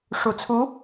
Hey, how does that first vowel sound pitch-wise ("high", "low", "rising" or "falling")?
low